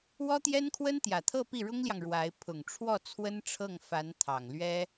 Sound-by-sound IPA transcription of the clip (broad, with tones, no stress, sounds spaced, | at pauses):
w ɔ˥ t̪ j ɛ˥ n kʰ w ə˥ n t̪ j ä˨˩ t̪ʰ ɤ˥˧ p i˥˩ ɻ ʊ˥ ŋ l j ɑ˨ ŋ ɻ w a˧˥ ɪ̯ pʰ ʊ˨˩ ŋ ʈ͡ʂʰ w ɔ˥˩ t͡sʰ w ə˥ n ʈ͡ʂʰ ɤ˥˩ ŋ f a˧˥ n t̪ʰ ɑ˨˩ ŋ l ɥ ɛ˥